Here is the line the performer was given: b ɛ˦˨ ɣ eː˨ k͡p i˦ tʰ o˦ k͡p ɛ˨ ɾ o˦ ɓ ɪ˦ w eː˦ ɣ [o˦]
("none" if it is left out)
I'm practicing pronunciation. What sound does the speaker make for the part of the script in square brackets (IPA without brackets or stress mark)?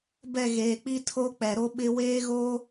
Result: o˦